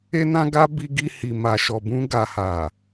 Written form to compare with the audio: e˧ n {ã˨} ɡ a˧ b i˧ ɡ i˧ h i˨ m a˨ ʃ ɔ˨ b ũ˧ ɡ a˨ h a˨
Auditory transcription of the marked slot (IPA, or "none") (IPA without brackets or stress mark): ã˧